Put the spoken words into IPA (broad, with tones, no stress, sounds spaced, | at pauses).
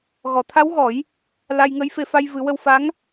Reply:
ɣ ɔ˨˩˨ t̪ʰ a˧˥ w ɣ ɔ˨˩˦ j | l a˧ j ŋ ə˧˥ j f e˧ f a˧ j v ɨ˨˩˦ w ə˧ w f a˧˥ ŋ